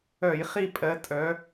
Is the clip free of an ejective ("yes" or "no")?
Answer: no